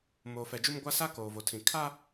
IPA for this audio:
m oː˨ f ɛ˨ d͡ʒ u˦ m ɡʷ a˦ s a˦ k oː˨ v o˨ tʰ ĩ˨ kʰ a˦

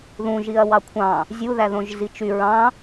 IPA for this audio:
ð ũ ʒ i ɐ̯ w ɑ kʷʰ ɑ̃ | zʲ u ð æ ð õ ʒ z i t͡ʃ y ɹ ɑ̃

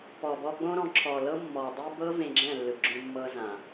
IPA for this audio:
p ɔ˨ b ɔ˧ ɡ͡b õ˦ ɾ ɔ̃˨˦ ǁʰ ɔ˨ l ɤ˦ mː ɔ˨ dˤ i˦ b ɤ˦ v ẽ˧ ɡ͡ǁ ɛ̃˦˨ lː ɯ˨ ɡ͡ǁ õ˧ mː ɤ˧ z ã˨

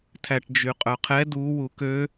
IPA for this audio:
tʰ æ ʈ d͡ʒ y qʼ œ qʰ ɛ d u w u k ø

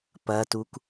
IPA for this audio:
p ɐ t u k

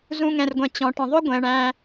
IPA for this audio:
z ũ˨ ŋ ɛ̃˩ r ɡʷ ɛ̃˩ t͡ɕ ɔ̃˩ ʈ ə̃˩ ðˤ ʊ˥ ɡʷ ɛ̃˩ ɳ æ̃˨

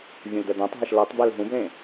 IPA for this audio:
vʲ ũ l d̪ ɛ d̪ œ̃ tˤ ɦ ɛ ʃ l ɤ tˤ b ɛ l ɦ ũ b l ẽ

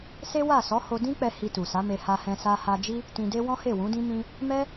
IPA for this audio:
s e˦ w a˦˨ s ɔ˨˦ h o˧ d ĩ˦ k͡p ɛ˧ h i˧ t u˨ s a˨˦ m e˧ h a˧ h ɛ̃˧ s a˧ h a˧ d͡ʒ i˦ | t ĩ˧ d e˦ w ɔ̃˦ h e˦˨ w ũ˨˦ d ĩ˦ m ĩ˦ | m ɛ˦

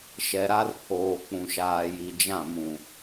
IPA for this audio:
ʃ ɛ˨ ɾ a˦ r pʰ oː˨ k͡p ũ˨ ʃ aː˨ j i˨ d͡ʒ ã˦˨ m ũ˨

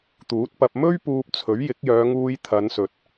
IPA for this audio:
t̪ uː˨˥ t̚ p ɐ˧ p̚ m ɵ˥ ɥ p uː˧ p̚ t͡sʰ ɵ˨˥ ɥ j ɪ˨˥ k̚ j œː˨˧ ŋ uː˧ j t̪ʰ ɐ˨˧ n s ɵ˨ t̚

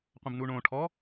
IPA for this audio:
qʷ ə̃ b n u ɳ õ ʈʰ ɔ

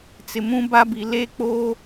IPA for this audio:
t͡s ɪ˨ m ũ˦ b a˦ b i˨ l e˦ k͡p oː˦

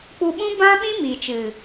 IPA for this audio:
k͡p u˧ ɓ ũ˦ b ã˦ ɓ ĩ˦ m iː˨ t͡ʃ ɨ˨

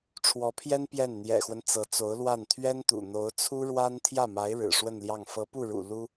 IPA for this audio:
ʈ͡ʂʰ w ɔ˧˥ pʰ j ɛ˥ n p j ɛ˥˩ n n̪ j ɛ̰˨˩ x w ə˦ n t͡s ɤ˧˥ t͡s o˧˥ ʊ̯ l w a˥˩ n t̪ʰ ɥ ɛ˥ n t̪ ṵ˨˩ n̪ o˧˥ ʊ̯ t͡sʰ u˥ ɻ w a˥ n t̪ʰ j ä˥˩ m a˧˥ ɪ̯ ɻ ɻ̩˨˩ ʂ w ə˥˧ n l j ɑ˥˩ ŋ f ɤ˧˥ p u˥˩ ɻ ṵ˨˩ l u˥

